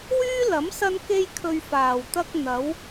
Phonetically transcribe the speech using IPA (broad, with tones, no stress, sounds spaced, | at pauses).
w yː˥ l ɐ˨˥ m s ɐ˥ n k e˥ j kʰ ɵ˧ ɥ f aː˨˩ w t̪ ɐ˥ k̚ n̪ ɐ˨˥ w